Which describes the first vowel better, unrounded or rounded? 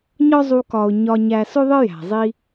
rounded